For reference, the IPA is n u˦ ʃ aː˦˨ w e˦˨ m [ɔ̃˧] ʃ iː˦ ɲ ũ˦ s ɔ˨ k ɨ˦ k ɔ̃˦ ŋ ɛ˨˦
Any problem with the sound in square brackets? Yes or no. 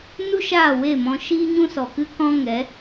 no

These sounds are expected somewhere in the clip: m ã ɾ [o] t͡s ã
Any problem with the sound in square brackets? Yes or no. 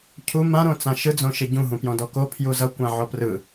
yes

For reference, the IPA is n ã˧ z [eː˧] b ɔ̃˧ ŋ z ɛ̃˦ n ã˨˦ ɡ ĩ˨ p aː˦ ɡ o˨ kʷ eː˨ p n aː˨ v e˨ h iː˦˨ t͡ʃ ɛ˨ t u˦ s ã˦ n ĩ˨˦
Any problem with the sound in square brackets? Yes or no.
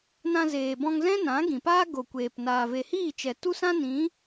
yes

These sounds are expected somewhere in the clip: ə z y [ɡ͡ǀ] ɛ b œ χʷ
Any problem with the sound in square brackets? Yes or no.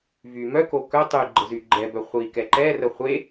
yes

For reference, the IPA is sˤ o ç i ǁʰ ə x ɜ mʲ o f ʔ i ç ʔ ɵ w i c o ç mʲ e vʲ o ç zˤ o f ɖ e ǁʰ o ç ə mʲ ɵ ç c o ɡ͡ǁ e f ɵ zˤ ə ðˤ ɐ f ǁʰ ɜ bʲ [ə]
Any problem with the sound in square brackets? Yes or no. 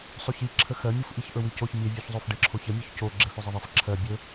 yes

